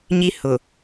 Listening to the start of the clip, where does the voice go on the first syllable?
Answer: high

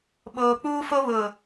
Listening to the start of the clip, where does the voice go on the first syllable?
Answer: low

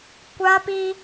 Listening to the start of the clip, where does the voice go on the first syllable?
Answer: high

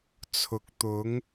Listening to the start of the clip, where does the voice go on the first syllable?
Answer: low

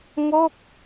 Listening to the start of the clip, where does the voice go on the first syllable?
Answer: falling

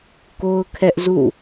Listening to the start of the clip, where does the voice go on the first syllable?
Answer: high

